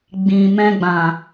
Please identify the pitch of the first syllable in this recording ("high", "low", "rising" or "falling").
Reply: low